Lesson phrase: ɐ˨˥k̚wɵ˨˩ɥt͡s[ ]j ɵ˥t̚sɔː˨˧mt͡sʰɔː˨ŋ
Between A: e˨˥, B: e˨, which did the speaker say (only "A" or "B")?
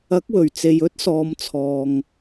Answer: B